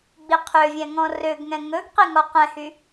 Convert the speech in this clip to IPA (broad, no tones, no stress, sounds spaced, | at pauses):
ɡ͡b i qʰ ø vʲ ɛ̃ ŋ ɔ̃ r ø ɡ ŋ ɛ̃ ŋ ɵ ɡ q i ŋ ɔ q ɛ̃ h y